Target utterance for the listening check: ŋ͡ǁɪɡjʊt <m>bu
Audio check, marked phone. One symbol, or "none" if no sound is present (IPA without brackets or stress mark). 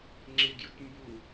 m